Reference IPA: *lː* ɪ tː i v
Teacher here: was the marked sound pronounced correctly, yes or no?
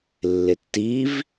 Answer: yes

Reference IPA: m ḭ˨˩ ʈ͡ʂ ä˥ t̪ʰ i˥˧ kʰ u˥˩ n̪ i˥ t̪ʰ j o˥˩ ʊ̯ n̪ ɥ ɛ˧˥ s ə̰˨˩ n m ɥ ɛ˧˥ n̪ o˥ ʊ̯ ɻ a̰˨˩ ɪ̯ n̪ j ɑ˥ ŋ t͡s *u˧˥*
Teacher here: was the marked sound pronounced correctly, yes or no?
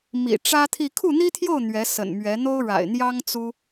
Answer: no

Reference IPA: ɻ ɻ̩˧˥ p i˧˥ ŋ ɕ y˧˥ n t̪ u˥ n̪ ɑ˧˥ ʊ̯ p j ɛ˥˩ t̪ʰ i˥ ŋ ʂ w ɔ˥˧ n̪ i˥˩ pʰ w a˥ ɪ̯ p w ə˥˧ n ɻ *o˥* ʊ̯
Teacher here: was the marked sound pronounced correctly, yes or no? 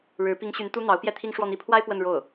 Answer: no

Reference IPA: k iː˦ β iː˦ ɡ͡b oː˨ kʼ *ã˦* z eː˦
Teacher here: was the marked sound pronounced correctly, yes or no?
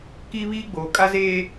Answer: no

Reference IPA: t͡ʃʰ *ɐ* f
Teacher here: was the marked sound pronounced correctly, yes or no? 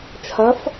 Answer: yes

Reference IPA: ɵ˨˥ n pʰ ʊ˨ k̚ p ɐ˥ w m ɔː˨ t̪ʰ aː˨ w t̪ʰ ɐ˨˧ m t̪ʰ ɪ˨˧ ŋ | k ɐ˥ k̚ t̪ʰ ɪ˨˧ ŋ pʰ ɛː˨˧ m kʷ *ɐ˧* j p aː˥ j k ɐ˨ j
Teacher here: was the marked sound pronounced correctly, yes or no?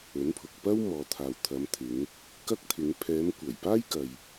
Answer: no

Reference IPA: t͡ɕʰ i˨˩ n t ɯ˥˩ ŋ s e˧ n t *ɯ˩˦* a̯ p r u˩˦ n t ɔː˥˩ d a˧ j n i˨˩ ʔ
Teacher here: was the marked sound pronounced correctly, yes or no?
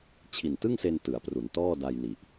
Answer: yes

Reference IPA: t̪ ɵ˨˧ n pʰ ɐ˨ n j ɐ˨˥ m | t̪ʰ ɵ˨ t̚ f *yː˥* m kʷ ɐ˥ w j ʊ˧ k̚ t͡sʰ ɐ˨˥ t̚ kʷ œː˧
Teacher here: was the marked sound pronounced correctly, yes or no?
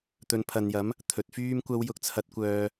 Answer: yes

